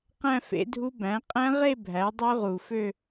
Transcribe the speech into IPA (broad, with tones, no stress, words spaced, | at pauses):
qæ̃˥˧fḛ˩˥dʱu˦˥ bæ̃˩˥ qʼæ̃˦˥ʁe˥˧ bʱæ˩˥dˤø˦˥ʁu˨˩fø˥˧